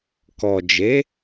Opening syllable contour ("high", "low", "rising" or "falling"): low